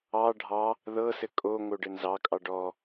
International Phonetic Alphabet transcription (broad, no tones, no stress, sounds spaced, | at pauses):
ɑ ɖʱ ɑ | ð ɤ s ɘ kʼ o ŋ o ɖ ɘ n z ɑ kʼ ɑ ɖ ɔ